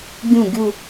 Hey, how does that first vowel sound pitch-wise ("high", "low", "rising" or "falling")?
falling